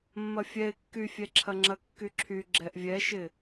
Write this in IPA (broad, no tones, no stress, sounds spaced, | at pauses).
mː ɐ fʲ ɛ ɪ̯ kː y fʲ ɛ ǁʰ ɐ ŋ͡ǁ ɐ kː y ǁʰ y ɡ͡ǁ ɛ ʔ vʲ ɛ ʃ ɪ